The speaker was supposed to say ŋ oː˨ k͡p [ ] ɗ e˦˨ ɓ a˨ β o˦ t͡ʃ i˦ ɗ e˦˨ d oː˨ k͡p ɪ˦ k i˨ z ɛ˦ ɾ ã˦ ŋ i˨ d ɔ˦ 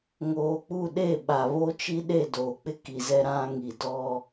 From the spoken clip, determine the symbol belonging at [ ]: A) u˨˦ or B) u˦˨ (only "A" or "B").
B